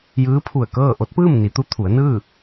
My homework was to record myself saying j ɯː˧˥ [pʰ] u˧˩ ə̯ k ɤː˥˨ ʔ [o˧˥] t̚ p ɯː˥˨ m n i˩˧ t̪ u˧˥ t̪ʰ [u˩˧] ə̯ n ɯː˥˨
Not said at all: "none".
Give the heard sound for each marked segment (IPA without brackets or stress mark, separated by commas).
pʰ, o˧˥, u˩˧